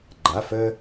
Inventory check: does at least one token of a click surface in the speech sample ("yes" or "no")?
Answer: yes